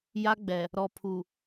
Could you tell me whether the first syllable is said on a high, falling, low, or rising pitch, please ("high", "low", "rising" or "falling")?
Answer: high